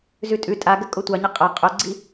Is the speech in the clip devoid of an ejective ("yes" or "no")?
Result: no